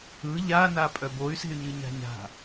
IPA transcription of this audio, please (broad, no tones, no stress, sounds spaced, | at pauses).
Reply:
ɯ ʎ a n a pʼ œ b o y̯ s e̤ y̯ ɲ ɯ ɲ a̤ ɲ a̤